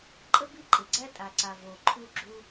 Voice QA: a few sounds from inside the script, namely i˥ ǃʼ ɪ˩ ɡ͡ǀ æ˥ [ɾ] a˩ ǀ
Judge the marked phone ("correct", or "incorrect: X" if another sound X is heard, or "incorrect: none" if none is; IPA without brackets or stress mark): incorrect: tʼ